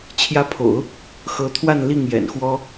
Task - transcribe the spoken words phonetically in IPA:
t͡ɕʰ j ä˧˥ pʰ o̰˨˩˦ ʊ̯ | x ɤ˧˥ t̪ʰ w a˥˧ n l i˥˩ ŋ j ɛ̰˨˩ n x w ɔ˥

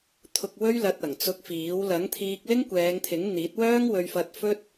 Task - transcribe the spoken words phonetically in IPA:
t̪ʰ ʊ˧ k̚ w ɵ˥ ɥ l ɐ˧ t̚ ɐ˨˩ ŋ t͡s ʊ˧ k̚ f iː˨˥ w l ɐ˨˥ ŋ t̪ʰ iː˧ k̚ l ɪ˥ ŋ kʷ ɛː˨˧ ŋ t̪ʰ ɪ˨˥ ŋ n̪ iː˨˥ t̚ w œː˥ ŋ w ɵ˧ ɥ f ɐ˧ t̚ f ɵ˥ t̚

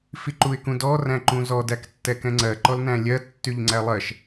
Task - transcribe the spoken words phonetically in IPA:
f i ǃ u ɪ̯ k ũ d ɔ r æ̃ ǃ ũ z ɔ d æ k tː ɛ k ɛ̃ ŋ͡ǀ ɜ ǃ ɔ l n æ̃ lʲ ɜ tː y ʎ ŋ͡ǀ æ lˠ ɜ ʃ

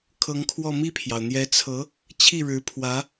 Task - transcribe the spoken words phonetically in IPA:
kʰ ɤ˧˥ ŋ kʰ w ɔ˥˧ m i˥˩ pʰ j ɑ˩ ʊ̯ n̪ j ɛ˧˥ t͡sʰ ɤ˧˥ | t͡ɕʰ i˥˩ ɻ ɻ̩˧˥ pʰ w ä˧˥

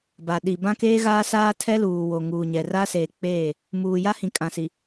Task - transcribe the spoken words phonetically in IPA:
b a˨ ɗ i˨ b ã˦ k eː˦ ɣ aː˦ s aː˦ tʰ ɛ˦ l uː˨ w o˨ ŋ uː˨ ɲ ɛ˨ r a˦ s eː˨ k͡p eː˦˨ | m uː˨ j a˦ h ĩ˨ kʼ ã˨ s i˨

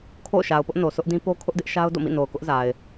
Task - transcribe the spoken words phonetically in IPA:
kʰ o̰˦˨ ʊ̯ ʃ a˨ ʊ̯ p ʊ˦ ʔ n o˨ sʰ ʊ˦ ʔ d ĩ˦ p o˦ kʰ ʊ˦ ʔ d ɪ˦ ʔ ʃ a˦ ʊ̯ d o̰˦˨ m ḭ˦˨ n o˨ ʊ̯ k ʊ˦ ʔ z a˨ ɪ̯

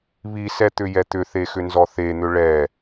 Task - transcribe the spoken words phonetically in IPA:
β i s ɛ t̪ ʏ j ɛ t̪ ʏ θ e x ʏ n z ɔ θ e n̪ ʏ ɭ ɛ

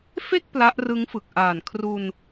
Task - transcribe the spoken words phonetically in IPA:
f e˥˩ k̚ p l a˦˥ ʔ r ɯ˦˥ ŋ f ɯ˨˩ k̚ ʔ aː˨˩ n kʰ r u˧ n

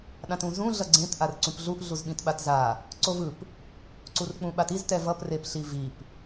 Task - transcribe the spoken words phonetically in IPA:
ɗ ã t ũ z ũ ɮ ʌ ɡ͡ǀ ẽ t ʔ a r ǀ ũ p ɮ u ʔ ɮ u z ɓ ĩ t ɓ a t z a | ǀ o v ɯ p | ǀ u r k͡p ũ ɓ a t i z t ɛ v ʌ p r e p ɬ i v i p

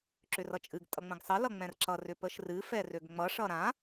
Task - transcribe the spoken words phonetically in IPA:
ǁ ʏ r ʌ t͡ʃʼ ɨ ɡ tʼ ʌ ŋ͡m ə̃ ɡ sˤ ʌ l ʌ ŋ͡m ɛ̃ r ǁ ʌ r ʏ p ə ʃ r ɨ f ɛ r ø ɡ ŋ͡m ʌ ʂ ʌ ɾ ã

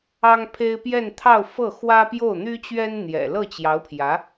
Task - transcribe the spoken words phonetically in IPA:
ɑ˥ ŋ pʰ e˥ ɪ̯ p j ɛ˥˧ n t̪ʰ ɑ˥˧ ʊ̯ f ɤ˥˩ x w ä˥ p j o˥˩ ʊ̯ n̪ y˥ t͡ɕ ɥ ɛ˥ n n̪ j ɛ̰˨˩ l ɤ˥˩ t͡ɕ j ɑ˧˥ ʊ̯ pʰ j ä˧˥

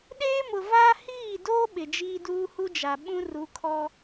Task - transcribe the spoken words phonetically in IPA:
ɗ eː˦ m ʊ˨ v aː˦ h iː˦˨ d oː˦ ɓ ɪ˨ d͡ʒ iː˦ d uː˦ h u˦ d͡ʒ a˨ ɓ ũ˦ r u˨˦ kʰ ɔ˦

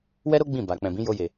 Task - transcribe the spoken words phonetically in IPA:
w ɛ˦ ɾ o˦ ɡ͡b ĩ˦˨ b a˨ k͡p ɛ̃˨ b ĩ˨˦ j o˧ j e˨

